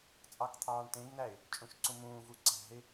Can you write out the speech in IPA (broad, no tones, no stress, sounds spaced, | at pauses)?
t͡sʼ ɑ k t̪ʰ ɑː ɳ t ẽ ɡ n̪ æ ɪ̯ | t͡ʃʼ ũ ʃ ǀ ũ m ũː v u ǀ æ̤ ɪ̯